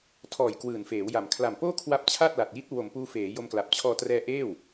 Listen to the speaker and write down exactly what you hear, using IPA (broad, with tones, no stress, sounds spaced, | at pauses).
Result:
tʰ ɔː˨˩ j k w ɯː˨˩ n f eː˩˦ w j a˨˩ m kʰ l a˨˩ m p oː˥˩ kʰ w a˦˥ p̚ t͡ɕʰ a˥˩ t̚ l a˨˩ t̚ j i˦˥ t̚ w o˨˩ m p uː˧ f eː˩˦ j o˧ m k l a˨˩ p̚ t͡ɕʰ ɔː˧ t r ɛː˦˥ ʔ eː˥˩ w